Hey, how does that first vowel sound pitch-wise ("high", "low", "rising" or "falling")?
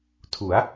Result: rising